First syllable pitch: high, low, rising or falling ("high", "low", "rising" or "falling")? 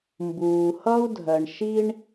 low